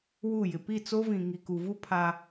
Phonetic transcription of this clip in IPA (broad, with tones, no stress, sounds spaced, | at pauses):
w u˦˨ j ɪ˨ p i˦˨ t͡s o˦ v ĩ˨ ŋ i˨ k u˨ v u˦ pʰ a˦